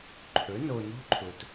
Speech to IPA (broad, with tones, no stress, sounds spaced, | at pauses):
ǃʰ ɵ˩˥ n o˨ n o̤˥ ǃʰ ʊ˨ t